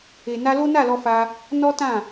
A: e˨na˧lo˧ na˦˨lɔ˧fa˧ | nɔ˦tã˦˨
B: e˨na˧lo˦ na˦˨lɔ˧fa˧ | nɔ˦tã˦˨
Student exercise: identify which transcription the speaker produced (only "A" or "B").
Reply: B